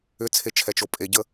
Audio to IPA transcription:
ʏ t͡sʰ e t͡ʃʰ ɛ t͡ʃ o pʼ e ɟ ə

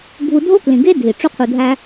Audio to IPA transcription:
ɡʱ u˧ dʱ o˦ k l ĩ˨ ɡ e˦ dʱ i˨ ʈ͡ʂ u˦ qʰ u˧ dʱ æ˦

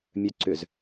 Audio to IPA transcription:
mʲ œ ǀ ʏ z

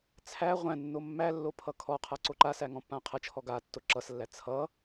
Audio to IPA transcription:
t͡sʰ æ ʁʷ æ̃ nː o mː æ lː o pʰ ʌ kʰ ɔ qʰ a ǀ o ǃ a s æ ŋ ɔ̃ pː ã qʰ ʌ t͡ʃʰ ɔ ɡ a tː o ǁ ʌ s lː æ t͡sʰ ʌ

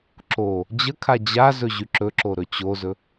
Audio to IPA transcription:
ǁ o | d͡ʑ ə kʰ a d͡ʑ a z ɵ ʑ y ǁ ɵ ǁ o ɾ ɵ t͡ɕ o z ɵ

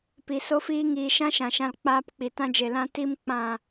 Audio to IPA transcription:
p i˨ s o˦ f iː˦ ŋ iː˨ ʃ ã˦ ʃ ã˨ ʃ ã˧ l k͡p aː˦ p k͡p i˨ t ã˦ d͡ʒ e˨ l ã˦ t i˦ m k͡p ã˦˨

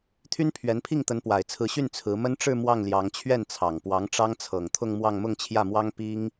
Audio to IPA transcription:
t̪ʰ y˥ n pʰ ɥ ɛ˧˥ n pʰ i˥˩ ŋ t̪ ə˧˥ n p w a˨˩ ɪ̯ t͡sʰ ɹ̩˧˥ ɕ y˥˩ n t͡sʰ ɹ̩˧˥ m ə˥ n ʈ͡ʂ ɻ̩˥˧ m w ɑ˥˩ ŋ l j ɑ˧˥ ŋ t͡ɕʰ ɥ ɛ˥˩ n t͡sʰ ɑ˨˩ ŋ p w ɑ˧˥ ŋ ʈ͡ʂ ɑ˥ ŋ t͡sʰ ɤ˨˩ ŋ t̪ʰ ʊ˥˧ ŋ m w ɑ˥˧ ŋ m ʊ˥˧ ŋ t͡ɕʰ j ä˥˩ m w ɑ˥ ŋ p i˥ ŋ

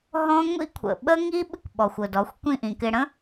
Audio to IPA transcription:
ɦ ɔ̃˦ ŋʷ ḭ˦ kʷʰ ə̰˨ ɓ ə˦ ŋ i˦ ɓ ɪ˦ kʷ ɓ ɔ˨ xʷ ʊ˨ d ɔ˨˦ xʷ kʷ ĩ˦˨ ʔ ĩ˨ k ɪ˧ ɽ ə̃˦

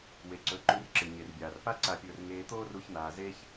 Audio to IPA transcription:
w e˨ ǀ ɵ˨˦ ǃ ʉ˧ r ǁ ɨ˨ ɲ e˨ r bʲ aː˨ r p a˦ ǀ a˧ pʲ ɵː˧ r ŋ eː˧ t̪ oː˦ r u˦ ç n̪ aː˧ z e˦ ç

